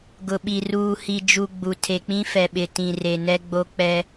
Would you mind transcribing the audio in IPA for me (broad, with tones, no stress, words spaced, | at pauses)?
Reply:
ɡʊ˨ɓi˨ ruː˨hi˨ d͡ʒu˨ ɡ͡bu˨ tʰe˨k͡pĩ˦fɛ˨ɓɪ˨ tĩ˨re˨nɛ˦ ɡ͡bo˦ k͡pɛ˦